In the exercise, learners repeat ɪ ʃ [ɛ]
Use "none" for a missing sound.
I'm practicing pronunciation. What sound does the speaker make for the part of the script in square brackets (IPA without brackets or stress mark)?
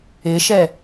ɛ